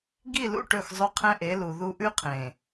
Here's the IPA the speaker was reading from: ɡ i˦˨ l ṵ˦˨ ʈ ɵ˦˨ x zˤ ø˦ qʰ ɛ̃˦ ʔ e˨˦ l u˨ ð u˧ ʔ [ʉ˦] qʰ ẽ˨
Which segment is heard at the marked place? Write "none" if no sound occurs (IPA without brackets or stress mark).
ʉ˦